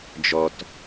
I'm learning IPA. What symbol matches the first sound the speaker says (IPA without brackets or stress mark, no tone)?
d͡ʒ